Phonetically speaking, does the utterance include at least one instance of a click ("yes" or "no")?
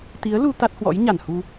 no